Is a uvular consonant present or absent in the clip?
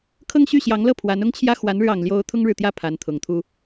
absent